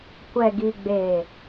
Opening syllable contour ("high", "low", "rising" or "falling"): low